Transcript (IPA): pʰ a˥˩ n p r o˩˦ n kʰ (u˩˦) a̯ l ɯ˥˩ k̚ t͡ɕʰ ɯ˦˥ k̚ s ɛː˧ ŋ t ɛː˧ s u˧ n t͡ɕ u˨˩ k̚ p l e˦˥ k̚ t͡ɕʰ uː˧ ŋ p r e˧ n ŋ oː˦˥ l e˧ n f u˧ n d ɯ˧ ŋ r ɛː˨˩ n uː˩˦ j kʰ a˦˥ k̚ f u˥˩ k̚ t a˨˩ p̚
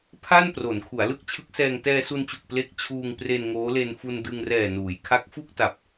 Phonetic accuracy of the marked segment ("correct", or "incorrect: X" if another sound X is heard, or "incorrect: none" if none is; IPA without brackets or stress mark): correct